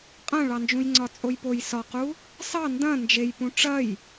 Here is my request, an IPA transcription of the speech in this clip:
qʼ ɐ̃ ɭ ɑ n d͡ʒ ũ j ŋ͡ǀ ɒ t͡sʼ o j p o j s ɒ q u | s ɑ n d ɐ̃ n d͡ʒ e j p ũ ʈ͡ʂ ɐ j

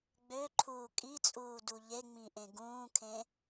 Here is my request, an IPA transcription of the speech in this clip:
ɡ͡b ø ǃʰ uː kʼ i t͡sʼ uː d u ʎ e ŋ͡m ĩ ʔ ẽ ɡ ũː kʰ ẽ

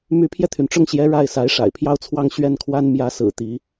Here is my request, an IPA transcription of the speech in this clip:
m y˧˥ pʰ j ɛ˧ t̪ʰ y˩ n ʈ͡ʂ ʊ˥˩ ŋ ɕ j ɛ˧˥ ɻ a˥˩ ɪ̯ s a˧˥ ɪ̯ ʂ a̰˨˩ ɪ̯ pʰ j ɑ˥˧ ʊ̯ t͡sʰ w ɑ˥˧ ŋ ɕ ɥ ɛ˥˩ n kʰ w a˥ n m j ä˧˥ s ɹ̩˨˩ t̪ i˧˥

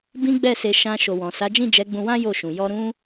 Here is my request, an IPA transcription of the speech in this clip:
b ĩ˦ ɡ͡b ɛ˦˨ s e˧ ʃ ã˧ ʃ o˨ w ɔ̃˨ s a˨˦ d͡ʒ ĩ˦˨ d͡ʒ ɛ˨˦ ɡ͡b ũ˧ w ã˦ j o˦˨ ʃ ũ˨ j ɔ˧ ɾ ũ˦

